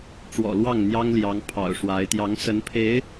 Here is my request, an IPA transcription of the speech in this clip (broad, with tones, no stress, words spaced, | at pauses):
ʈ͡ʂwɔ̰˨˩lwɑ˥˩ŋ n̪jɑ˥ŋljɑ˧˥ŋ pʰɑ̰˨˩ʊ̯ʂwa˧˥ɪ̯ t̪jɑ˧˥ŋsə˧˥n pʰe˧˥ɪ̯